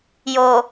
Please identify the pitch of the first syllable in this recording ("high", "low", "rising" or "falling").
low